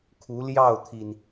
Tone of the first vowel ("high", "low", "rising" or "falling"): rising